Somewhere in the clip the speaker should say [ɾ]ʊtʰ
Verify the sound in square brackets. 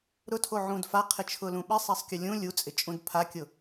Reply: correct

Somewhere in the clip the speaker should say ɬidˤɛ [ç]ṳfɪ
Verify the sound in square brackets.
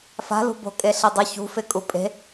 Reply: correct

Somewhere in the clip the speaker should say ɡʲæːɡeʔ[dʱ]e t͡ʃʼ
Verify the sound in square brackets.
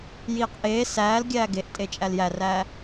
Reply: incorrect: tʼ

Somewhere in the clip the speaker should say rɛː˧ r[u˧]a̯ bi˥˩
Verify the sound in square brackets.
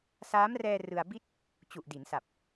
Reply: incorrect: ɯ˧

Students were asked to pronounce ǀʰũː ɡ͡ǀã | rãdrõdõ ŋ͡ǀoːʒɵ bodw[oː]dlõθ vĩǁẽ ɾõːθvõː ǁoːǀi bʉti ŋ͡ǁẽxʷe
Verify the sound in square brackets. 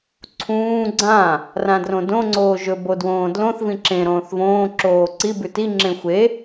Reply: incorrect: õː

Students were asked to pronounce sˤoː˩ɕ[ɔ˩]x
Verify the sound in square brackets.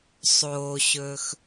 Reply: incorrect: ɵ˩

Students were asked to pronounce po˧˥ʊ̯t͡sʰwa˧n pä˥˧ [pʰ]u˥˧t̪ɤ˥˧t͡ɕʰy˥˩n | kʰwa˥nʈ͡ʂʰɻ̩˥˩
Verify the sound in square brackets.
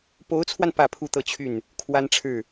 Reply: correct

